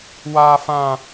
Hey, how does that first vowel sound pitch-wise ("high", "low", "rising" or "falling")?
high